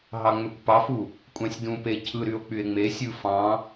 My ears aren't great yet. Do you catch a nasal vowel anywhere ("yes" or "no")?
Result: yes